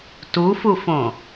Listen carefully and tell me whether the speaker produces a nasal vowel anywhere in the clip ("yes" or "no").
yes